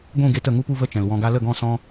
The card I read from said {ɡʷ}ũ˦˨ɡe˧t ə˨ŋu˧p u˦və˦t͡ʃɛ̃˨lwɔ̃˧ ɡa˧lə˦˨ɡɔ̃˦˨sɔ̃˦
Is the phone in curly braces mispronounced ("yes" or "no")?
no